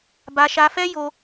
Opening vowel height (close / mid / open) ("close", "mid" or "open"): open